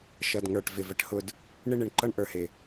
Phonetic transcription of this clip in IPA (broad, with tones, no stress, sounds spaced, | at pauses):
ʃ ʌ˨ d ŋ ə˞˨ ʈ v ɪ˨ v ə˧ ʈ h ʊ˧ d | ɳ ɪ˦ ɳ ɪ˨ ɳ ǃ ʌ˧ ɳ ʔ ə˞˨ h ɪ˨